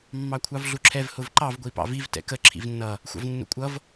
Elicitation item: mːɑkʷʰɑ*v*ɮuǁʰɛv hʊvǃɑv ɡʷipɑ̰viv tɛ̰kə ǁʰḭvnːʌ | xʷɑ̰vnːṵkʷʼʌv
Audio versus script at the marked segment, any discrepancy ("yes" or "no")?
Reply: no